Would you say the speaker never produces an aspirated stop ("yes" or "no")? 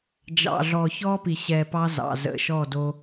yes